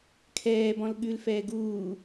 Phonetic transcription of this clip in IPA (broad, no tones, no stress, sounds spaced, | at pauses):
kʰ ɛː b ɔ̃ l ɠ ʉ l f ɛː ɡ uː